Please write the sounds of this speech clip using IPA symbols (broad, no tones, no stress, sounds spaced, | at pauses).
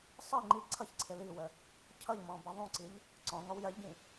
sˤ i ŋ͡ǃ i ǀʰ ʌ ç ǀʰ ɪ l i w ə | cʰ ʌ ʎ m ɔ̃ b ʌ ðˤ ũ ǀ i ʎ | ǀ ɔ̃ ŋ ɔ w j ɜ ʎ ɟ ĩ